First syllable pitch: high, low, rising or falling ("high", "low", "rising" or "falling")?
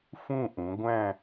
falling